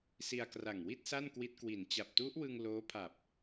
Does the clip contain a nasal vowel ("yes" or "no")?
no